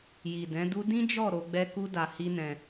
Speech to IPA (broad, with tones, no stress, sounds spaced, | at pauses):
j i˨ d ɛ̃˨˦ d u˦ d ĩ˦ d͡ʒ ɔ˦˨ ɾ o˨˦ ɡ͡b ɛ˦ k u˦ d a˧ h i˦ n ɛ̃˧